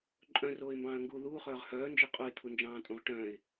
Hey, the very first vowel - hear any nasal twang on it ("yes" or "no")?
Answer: yes